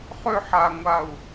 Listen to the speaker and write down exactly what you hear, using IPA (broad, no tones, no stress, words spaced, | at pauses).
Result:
χʏħaŋʷau̯